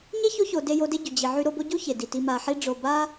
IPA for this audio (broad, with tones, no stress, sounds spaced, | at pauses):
ɲ e˥ ç o˦ ç o˨ d e˦ j o˦ d e˥ ɟ y˩ d͡ʑ i˨ ʕ y˦ ɾ o˦ b o˥ ɟ u˥ ç e˩ d i˩ t i˨ m a˨ ħ i˦ ɖ͡ʐ o˨ b a˦